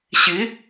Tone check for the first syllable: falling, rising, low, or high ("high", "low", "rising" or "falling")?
rising